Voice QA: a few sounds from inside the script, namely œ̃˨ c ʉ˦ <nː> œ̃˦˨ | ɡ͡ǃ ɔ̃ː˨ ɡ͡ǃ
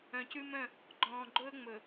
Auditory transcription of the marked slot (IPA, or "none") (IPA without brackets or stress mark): m